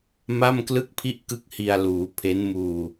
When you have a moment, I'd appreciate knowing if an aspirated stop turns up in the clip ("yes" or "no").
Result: yes